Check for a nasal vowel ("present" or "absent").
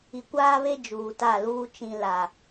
present